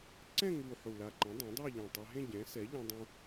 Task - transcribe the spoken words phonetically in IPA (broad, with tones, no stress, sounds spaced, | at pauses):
ǀ ɛ̃˥˧ ŋ u˨˩ ħ u˨˩ l a˨˩ ǃ ɛ̃˩˥ dˤ ã˩˥ dˤ e˥˧ ʎ ɛ̃˨˩ tˤ a˧ ɦ ẽ˥˧ ɟ ɛ̃˩˥ s ɛ˩˥ ʎ ã˧ dˤ ũ˧